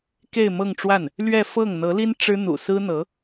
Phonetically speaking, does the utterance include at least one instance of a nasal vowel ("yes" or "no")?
no